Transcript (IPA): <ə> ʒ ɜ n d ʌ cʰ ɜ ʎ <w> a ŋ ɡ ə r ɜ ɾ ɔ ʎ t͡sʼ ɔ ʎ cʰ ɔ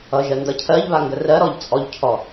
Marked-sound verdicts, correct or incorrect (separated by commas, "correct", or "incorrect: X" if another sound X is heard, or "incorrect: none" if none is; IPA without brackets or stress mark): incorrect: ʌ, incorrect: β